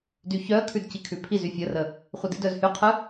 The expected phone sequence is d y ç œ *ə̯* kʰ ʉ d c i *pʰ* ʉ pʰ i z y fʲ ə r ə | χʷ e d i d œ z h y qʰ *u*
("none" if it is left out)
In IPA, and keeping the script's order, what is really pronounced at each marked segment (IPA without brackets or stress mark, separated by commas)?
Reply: ə̯, kʰ, ɯ